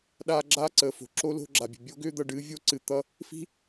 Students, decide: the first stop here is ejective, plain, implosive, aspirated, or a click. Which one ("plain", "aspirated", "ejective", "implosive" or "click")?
implosive